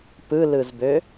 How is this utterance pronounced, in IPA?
p ɯ l ɯ z b ø

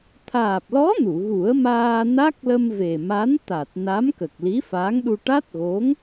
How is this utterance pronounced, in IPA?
t̪ʰ aː˨˩ p̚ l ɔ˧˥ n u˨˩˨ ɣ u˨˩˦ ə̯ m aː˧ n a˦˥ k̚ l ə˧ m v e˨˩ m a˧˥ n t̪ a˨˩ t̚ n a˧˥ m k ə˨˩ k̚ l i˧˥ f aː˧˥ ŋ ɗ u˧ ʈ a˦˥ t̚ ɣ o˧˥ ŋ

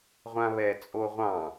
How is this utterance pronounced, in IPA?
ʁʷ ã β ɛ t͡sʼ o ʁʷ ɑ̃

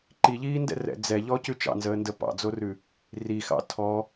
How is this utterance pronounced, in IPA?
ǃ i ʎ iː n d ɛ̰ r ɛ̰ d͡z ɛ ʎ ɔ c ʉ t͡ʃ ɑ̰ n z əː n d ə p ɑ̰ d͡z o r ʉ | r i x ɑ̰ tʰ ɔ

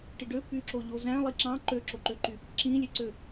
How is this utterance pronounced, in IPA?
ʈ i ɖ ø p y ǁ o ʎ o z æ̃ lˠ i ǁ ɑ̃ ǃ ø ǁ o ǃ ø ǃ y | ǁ ĩ lʲ e ǀ ø

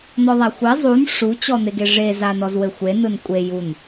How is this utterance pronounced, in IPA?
n̪ ɔ ðˤ a xʷ ɘ zˤ u n ʂ u t͡ɕ ɔ n̪ e ɡ e ʐ e z a n ɔ z w ɘ xʷ e n ɯ n kʷʼ e j u n

